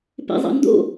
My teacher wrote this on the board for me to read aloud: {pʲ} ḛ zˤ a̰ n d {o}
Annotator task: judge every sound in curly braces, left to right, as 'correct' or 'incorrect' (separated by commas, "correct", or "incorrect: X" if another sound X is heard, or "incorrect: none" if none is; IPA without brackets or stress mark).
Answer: incorrect: p, incorrect: o̰